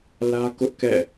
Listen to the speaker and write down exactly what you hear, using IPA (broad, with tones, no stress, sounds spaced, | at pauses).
l ä˦ k ʊ˦ ʔ k ɛ̰˦˨